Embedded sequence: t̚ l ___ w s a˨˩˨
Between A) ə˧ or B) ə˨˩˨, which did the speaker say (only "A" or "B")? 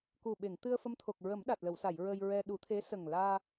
B